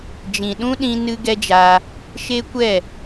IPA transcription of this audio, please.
d͡ʒ ĩ˨ ɗ ũ˦ ɗ ĩ˧ n ɨ˦ ɡ ɛ˦ d͡ʒ aː˧ | ʃ e˦ kʷ ɛ˦˨

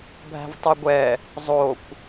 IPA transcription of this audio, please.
bʱ æ̤ v tˤ y ɡʷ ɛ | zˤ o kʷ

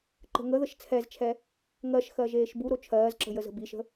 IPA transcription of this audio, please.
ǃ ə̤ ŋ ə ð ə ʃ t͡sʰ ɛ z t͡ʃʰ ɛ | ŋ ɜ ʃ x ɜ ʒ eː ʃ b u ɾ o t͡ʃʰ ɜː z ǁ ə̤ j ə z ə̤ b i ʃ ə̤

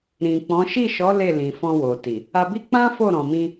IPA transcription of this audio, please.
ɾ ĩ˨ k͡p ɔ̃˨˦ ʃ i˦˨ ʃ ɔ˨˦ l e˦˨ l ĩ˨ f ɔ̃˧ w o˨ t i˨ | a˧ b i˦ k͡p ã˦ f o˦˨ ɾ ɔ̃˨ m ĩ˧

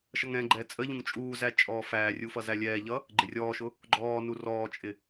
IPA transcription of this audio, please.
ʃ ʌ ŋ ɛ̃ ɡ͡ǃ ɛː t͡sʼ ə ʎ ũ ŋ t͡ʃʼ uː z æ t͡ʃʼ ɔː f æː rʲ u f ʌ z æ lʲ ɛː ʎ ʌ | ɡ͡ǃ ɪ rʲ ɔː ʃ ʊ | ɡ͡ǃ ɔː n u r ɔː t͡ʃʼ ɪ

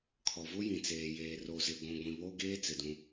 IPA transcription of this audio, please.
kʰ ɔ˨ v ʊ˦ j ĩ˨ t͡s eː˨ j eː˨ r o˨ z ɪ˨ ɡʷ ũ˨ ɡʷ ĩ˨ β o˦ ɡ eː˦ t͡s ɪ˨ d ũ˦

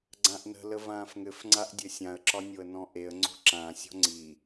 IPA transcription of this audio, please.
ɡ͡ǀ ã ʔ n ə̤ l ə v ãː f ŋ ɘ f ŋ͡ǀ a ʔ dʲ ɘ sʲ ã ə̯ ǁ ɒ nʲ o ə̯ n ɔ̃ ʔ e ə̯ ŋ͡ǀ o̤ ǁ ã sʲ ɔ̤ ŋ͡ǀ i

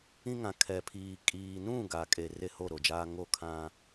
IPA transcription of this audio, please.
ĩ˦ ŋ ã˨ kʰ ɛ˨ pʰ iː˨ kʼ iː˨ n ũ˦˨ ɡ a˨ kʼ e˨ r e˦ h o˦˨ ɾ o˨ d͡ʒ aː˦ ŋ o˦˨ kʰ ã˦

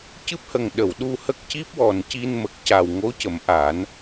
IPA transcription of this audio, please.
c ɨ˦˥ p̚ h ə˨˩ ŋ ɗ ə˨˩˨ w ɗ u˧ h ə˦˥ k̚ c i˦˥ p̚ w ɔ˨˩ n c i˧ n m ə˨˩ k̚ c a˨˩ w ŋ o˧˥ c ə˨˩˦ m ʔ a˨˩˦ n

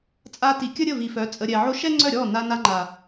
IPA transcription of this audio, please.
t͡sʼ a˧ t i˨ kʲ ə˦ ɾʲ ə˦˨ v i˨ f œ˨˦ t͡sʼ ə˨ ɾʲ ɛ˨ ʕ o˧ ʃ ɛ˦ ŋ͡ǀ œ˦˨ ɾʲ ɔ˦˨ n a˧ n a˧ ŋ͡ǃ a˨

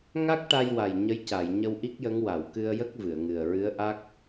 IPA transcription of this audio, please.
ŋ a˦˥ k̚ ʈ a˧ j w a˨˩ j ɲ ə˧˥ j c a˨˩˨ j ɲ ə˧ w ʔ i˦˥ k̚ j ə˧˥ ŋ w a˨˩˨ w k ɨ˧ ə̯ j ə˦˥ k̚ v ɨ˨˩˨ ə̯ ŋ ɨ˨˩ ə̯ ɹ ɨ˧˥ ə̯ ʔ a˦˥ k̚

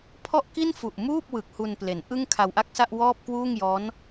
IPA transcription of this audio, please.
pʰ ɔ˥˩ ʔ k i˥˩ n f u˨˩ ʔ m uː˥˩ p̚ w ɯ˨˩ k̚ h u˧ n p l e˩˦ n ʔ ɯ˥˩ ŋ kʰ a˧ w ʔ a˥˩ k̚ s a˥˩ ʔ w ɔː˥˩ p̚ k w uː˥˩ ŋ j ɔː˦˥ n

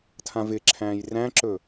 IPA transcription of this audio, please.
tʰ ã v ɪ ǁʰ æ̃ː j r æ̃ ǁ ɵ

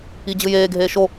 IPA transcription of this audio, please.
i d͡ʑ ɯ j eː ɡʱ eː ʃ o

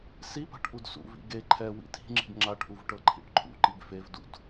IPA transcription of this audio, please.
s i p a̤ ʈ ʔ u d s ṵ v ḭ ɡ e ǃʰ ɛ w ḭ tʰ i̤ ŋ͡ǁ i̤ ɡ ŋ͡ǁ a ʈ ʔ u v ʈ ɤ ǃʰ ḭ ʈ ǃʰ ṵ ǃ i ɡ f e v d ṵ d

